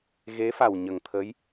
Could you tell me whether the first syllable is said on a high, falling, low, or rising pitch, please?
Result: rising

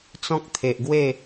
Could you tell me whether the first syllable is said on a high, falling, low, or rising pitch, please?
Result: high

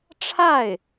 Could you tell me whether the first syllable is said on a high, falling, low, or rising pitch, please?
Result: falling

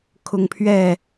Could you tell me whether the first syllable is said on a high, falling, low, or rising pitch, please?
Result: high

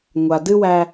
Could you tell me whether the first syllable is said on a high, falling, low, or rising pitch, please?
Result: low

